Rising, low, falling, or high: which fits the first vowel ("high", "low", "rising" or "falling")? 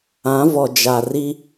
rising